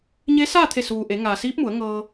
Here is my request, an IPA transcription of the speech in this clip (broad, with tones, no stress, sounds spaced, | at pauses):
ɲ e˧˥ s aː˥˨ t̪ʰ e˧˩ s uː˩ ʔ e˩˧ ŋ aː˩ s iː˧˥ p̚ m u˩˧ ə̯ ŋ ɤː˧